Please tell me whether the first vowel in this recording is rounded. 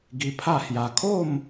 no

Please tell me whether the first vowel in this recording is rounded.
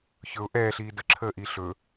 yes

